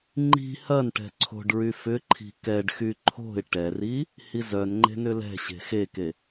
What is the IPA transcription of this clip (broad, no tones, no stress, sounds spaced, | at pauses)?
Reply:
ŋ͡ǃ i̤ h ɐ n ʈ ɛ̤ ǀʰ o̤ ɖ ɹ y f ʏ ǃʰ i̤ k ɛ ɖ x y ǃʰ o̤ ɪ̯ ʈ ɛ r i | h i z œ n ŋ͡ǃ e̤ n ʏ l ɛ̤ ɕ e̤ x e k e